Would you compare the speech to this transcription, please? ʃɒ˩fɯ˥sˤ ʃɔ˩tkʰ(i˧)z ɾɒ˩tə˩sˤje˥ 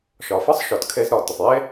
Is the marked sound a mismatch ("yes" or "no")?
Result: yes